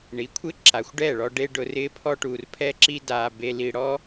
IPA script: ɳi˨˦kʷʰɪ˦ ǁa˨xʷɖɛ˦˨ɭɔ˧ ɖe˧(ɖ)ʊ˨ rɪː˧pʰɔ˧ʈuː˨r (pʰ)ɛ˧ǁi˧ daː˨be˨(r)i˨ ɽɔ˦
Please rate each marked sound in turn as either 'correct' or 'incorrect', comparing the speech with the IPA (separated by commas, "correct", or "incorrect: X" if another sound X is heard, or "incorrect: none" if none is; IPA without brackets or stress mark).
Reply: correct, correct, incorrect: l